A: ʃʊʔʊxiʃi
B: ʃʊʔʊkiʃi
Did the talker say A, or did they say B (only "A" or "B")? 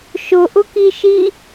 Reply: B